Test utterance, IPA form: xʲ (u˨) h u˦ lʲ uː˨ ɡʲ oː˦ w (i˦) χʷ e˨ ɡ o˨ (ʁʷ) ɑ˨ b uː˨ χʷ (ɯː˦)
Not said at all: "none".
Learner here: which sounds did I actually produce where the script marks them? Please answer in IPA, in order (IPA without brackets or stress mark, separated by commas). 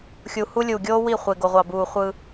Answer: u˨, i˦˨, ʁʷ, ɯː˦